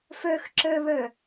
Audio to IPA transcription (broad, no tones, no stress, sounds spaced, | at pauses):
f ə˞ x ǁ ə˞ β ə˞